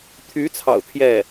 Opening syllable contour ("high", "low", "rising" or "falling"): rising